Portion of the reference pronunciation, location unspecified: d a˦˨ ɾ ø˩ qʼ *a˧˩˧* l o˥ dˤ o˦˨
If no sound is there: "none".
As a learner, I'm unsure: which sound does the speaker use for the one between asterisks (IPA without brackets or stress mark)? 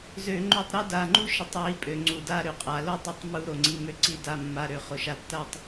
a˩